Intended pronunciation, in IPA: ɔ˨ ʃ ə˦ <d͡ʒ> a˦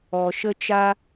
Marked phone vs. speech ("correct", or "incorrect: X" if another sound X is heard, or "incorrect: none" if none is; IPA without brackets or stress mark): incorrect: t͡ʃ